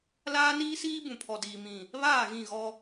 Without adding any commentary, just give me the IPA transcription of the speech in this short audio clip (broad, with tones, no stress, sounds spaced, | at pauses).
l aː˦ n iː˦ s iː˦ b ũ˨ pʰ ɔ˨ d iː˨ m ĩ˨ | β aː˦˨ ɣ ĩ˦˨ ɣ ɔ˦